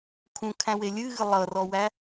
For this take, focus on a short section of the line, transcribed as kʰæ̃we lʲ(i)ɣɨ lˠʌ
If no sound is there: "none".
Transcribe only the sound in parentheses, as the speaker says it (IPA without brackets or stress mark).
ɨ